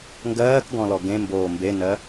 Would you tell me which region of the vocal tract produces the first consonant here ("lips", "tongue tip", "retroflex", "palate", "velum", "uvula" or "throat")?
velum